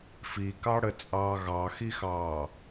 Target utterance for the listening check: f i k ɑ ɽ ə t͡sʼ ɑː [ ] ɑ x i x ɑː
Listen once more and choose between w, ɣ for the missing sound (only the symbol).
ɣ